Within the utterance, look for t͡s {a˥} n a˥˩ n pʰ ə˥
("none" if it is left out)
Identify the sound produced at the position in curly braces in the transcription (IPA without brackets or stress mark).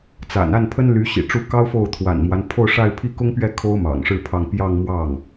a̰˨˩